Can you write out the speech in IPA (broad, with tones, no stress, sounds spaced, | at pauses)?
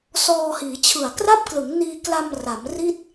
s ɔː˧ h iː˩˦ t͡ɕʰ ɯ˨˩ a̯ k r a˥˩ p̚ k l ɯ˩˦ ŋ n iː˧ k l a˧ m r a˩˦ m r i˥˩ t̚